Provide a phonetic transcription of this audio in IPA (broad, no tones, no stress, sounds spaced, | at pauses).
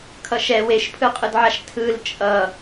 kʰ ʌ ʃ ɛ w e ʃ pʰ ɯ qʼ ɯ d ʕ a ʃ tʰ ɯ l t͡ʃʼ ʌ